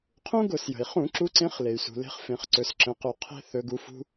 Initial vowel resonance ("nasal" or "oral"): nasal